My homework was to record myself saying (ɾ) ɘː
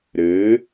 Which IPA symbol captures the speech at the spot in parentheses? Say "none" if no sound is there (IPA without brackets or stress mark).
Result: ɾ